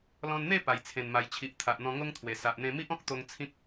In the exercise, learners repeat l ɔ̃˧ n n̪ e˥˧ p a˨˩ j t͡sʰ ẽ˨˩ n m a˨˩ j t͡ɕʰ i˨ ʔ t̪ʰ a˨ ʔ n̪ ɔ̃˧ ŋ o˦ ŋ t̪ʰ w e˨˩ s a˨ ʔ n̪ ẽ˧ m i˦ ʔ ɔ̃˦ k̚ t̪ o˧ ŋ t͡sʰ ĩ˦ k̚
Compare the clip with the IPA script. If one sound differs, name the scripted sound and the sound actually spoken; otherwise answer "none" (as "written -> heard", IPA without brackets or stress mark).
none